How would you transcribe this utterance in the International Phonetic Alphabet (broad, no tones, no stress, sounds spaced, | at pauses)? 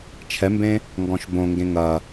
t͡ʃʰ ɛ m b ẽ | ŋ ɡ ɔ̃ ʃ b õ ŋ ɡ ẽ ŋ ɐ